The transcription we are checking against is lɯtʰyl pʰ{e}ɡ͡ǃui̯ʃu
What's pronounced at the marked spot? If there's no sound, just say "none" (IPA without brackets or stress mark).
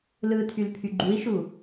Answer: y